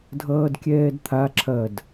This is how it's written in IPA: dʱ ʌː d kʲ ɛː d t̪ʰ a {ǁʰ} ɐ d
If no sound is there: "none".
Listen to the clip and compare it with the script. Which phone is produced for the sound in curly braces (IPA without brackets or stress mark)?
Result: ǁʰ